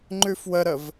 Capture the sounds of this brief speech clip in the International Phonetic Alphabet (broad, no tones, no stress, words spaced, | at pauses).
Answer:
ŋ͡ǃʉfwəɾəv